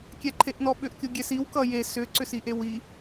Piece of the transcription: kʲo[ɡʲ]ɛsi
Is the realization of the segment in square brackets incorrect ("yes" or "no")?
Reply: no